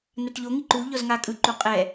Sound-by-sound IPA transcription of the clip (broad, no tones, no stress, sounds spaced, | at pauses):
n a ʈ ʎ o ŋ i ǃ u ʎ ɔ z ŋ a kʼ ɯ ǃ u qʼ ɛ